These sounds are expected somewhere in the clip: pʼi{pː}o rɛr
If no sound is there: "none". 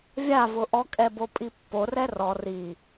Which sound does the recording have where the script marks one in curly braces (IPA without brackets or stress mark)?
pː